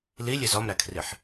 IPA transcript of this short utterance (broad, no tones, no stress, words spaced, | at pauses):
lilʲez ɒmɾækʰriħ